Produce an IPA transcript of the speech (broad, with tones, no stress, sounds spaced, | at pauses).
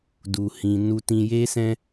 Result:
d u˨ h ĩ˨ n u˧ t ĩ˧ j e˦ s ɛ̃˦